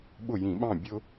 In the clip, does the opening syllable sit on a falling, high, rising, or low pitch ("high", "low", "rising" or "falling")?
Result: falling